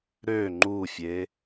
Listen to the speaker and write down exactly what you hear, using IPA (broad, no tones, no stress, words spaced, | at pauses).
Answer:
ɾø ŋ͡ǃufʲe